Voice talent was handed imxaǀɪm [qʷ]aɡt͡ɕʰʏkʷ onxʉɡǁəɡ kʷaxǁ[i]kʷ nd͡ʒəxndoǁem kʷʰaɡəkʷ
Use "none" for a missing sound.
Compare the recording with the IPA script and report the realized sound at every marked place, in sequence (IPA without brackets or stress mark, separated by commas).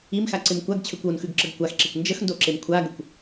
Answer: kʷ, e